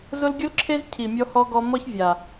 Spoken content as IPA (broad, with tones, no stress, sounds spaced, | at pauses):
z ʊ˦ l ɡʲ ʊ˦ l ǁʰ e˦ z cʰ i˨ mʲ ɔ˦ h ɔ˦ ɡ ɔ˦ m ɔ˦ ç vʲ a˨